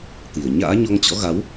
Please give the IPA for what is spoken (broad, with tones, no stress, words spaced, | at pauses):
t̪i˧˩ə̯ ɲa̰ː˧˥ɲɔ˧ŋ t͡ɕɔ̰˧˥ɣa˨˦w